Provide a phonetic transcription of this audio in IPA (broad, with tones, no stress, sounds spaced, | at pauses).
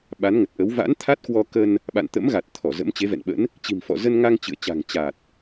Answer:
ɓ a˨˦ n ŋ ə˨˩ t̚ ʔ ə˨˦ w v a̰˧˥ n t̪ʰ a˦˥ t̚ k w ɔ˧ k ə˧ n | ɓ a̰˧˨ n t̪ ə̰˧˥ m ɣ a˨˩ t̚ t̪ʰ ɔ˧˩ z ə̰˧˥ m t͡ɕ e˨˦ v ɛ̰˧˨ n ɓ ə̰˧˥ n | t͡ɕ i̤˨˩ m f ɔ̰˧˨ z ə˧ n ŋ a˧ ŋ t͡ɕ ɨ̰˧˨ ə̯ t͡ɕ a̤˨˩ ŋ t͡ɕ a˨˩ t̚